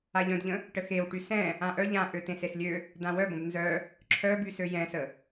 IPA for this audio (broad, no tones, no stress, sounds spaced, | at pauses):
a ʎ œ̃ d ʎ ə̃ | ʈ ə x e w ʈ y s ɛ̃ | ã ʔ œ ʎ ã ʔ ø t ẽ s e s lʲ ø | d ã w œ b ə̃ b n z œ | ǁʰ œ b y s ø j ɛ̃ s ə